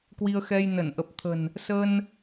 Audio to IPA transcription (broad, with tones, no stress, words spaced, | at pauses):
kwi˧ə̯xɛ˧j nə˧˩nʔə˨˩p̚t̪ʰə̤˨˩n | sə˧n